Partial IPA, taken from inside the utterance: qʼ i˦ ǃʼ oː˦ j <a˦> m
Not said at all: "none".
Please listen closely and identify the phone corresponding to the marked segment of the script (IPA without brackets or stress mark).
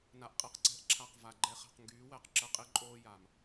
a˨